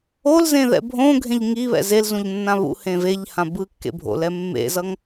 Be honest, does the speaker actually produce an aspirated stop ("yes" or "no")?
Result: no